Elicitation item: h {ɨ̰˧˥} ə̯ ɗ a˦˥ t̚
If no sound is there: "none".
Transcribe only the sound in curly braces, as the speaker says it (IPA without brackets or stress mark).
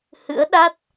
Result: ɨ̰˧˥